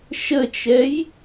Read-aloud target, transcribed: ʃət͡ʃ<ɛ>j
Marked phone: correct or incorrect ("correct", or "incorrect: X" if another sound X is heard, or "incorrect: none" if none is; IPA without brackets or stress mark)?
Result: correct